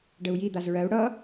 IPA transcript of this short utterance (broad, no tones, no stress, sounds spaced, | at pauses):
ɖ ə u̯ j i d̪ a z ɹ ɜ u̯ ɽ ʌ